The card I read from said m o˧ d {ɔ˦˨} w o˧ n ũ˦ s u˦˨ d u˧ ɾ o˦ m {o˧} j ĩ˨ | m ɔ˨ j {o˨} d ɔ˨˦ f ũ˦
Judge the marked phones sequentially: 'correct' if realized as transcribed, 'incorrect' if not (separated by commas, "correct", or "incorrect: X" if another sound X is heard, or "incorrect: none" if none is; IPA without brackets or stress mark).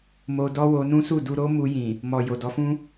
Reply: incorrect: ɔ˦, incorrect: u˧, correct